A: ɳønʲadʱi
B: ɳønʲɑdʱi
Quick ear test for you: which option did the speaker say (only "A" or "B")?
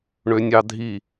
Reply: B